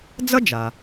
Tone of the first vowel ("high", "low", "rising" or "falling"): high